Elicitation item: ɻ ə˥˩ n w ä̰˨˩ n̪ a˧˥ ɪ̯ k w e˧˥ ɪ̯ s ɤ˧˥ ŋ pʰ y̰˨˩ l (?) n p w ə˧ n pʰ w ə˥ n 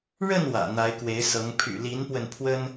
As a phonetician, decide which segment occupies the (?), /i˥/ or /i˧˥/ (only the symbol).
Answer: i˧˥